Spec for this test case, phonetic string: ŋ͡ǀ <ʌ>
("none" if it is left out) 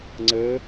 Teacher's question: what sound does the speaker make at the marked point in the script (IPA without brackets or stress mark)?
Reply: ə